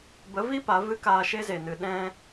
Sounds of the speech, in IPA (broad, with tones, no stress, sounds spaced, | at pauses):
b ə˨˦ v i˦ p a˨˦ v ɨ˦ k aː˧ ʃ e˦ z e˨ n ɨ˨ ɗ ɛ̃˧